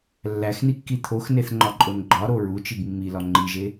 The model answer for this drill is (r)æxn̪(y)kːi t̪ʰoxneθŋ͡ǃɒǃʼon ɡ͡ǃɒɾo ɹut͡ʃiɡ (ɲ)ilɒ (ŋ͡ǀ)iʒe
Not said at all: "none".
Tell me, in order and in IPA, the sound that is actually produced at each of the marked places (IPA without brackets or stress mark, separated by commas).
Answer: lː, i, mː, ŋ͡ǃ